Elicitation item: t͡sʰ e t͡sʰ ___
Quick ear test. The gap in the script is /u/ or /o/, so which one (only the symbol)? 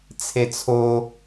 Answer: o